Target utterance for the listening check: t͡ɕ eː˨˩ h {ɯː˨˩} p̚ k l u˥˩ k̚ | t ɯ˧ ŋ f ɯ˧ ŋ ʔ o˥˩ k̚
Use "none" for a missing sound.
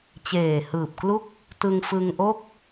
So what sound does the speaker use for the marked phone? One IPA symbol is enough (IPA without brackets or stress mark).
ɯː˨˩